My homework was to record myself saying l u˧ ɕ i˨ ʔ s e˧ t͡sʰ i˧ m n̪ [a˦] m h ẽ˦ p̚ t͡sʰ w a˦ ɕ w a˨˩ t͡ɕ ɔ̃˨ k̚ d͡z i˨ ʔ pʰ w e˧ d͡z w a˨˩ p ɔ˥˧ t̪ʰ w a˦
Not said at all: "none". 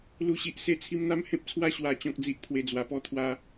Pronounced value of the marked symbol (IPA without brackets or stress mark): a˦